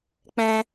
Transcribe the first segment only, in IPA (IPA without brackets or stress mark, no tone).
k͡p